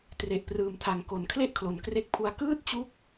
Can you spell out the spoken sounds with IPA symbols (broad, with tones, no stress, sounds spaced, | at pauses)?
t r e˨˩ ʔ p r ɯː˨˩ m tʰ a˨˩ ŋ k o˨˩ n kʰ l e˥˩ ʔ kʰ l o˨˩ n k r e˦˥ k̚ pʰ u˧ a̯ k ɯː˥˩ t̚ t͡ɕ u˦˥ k̚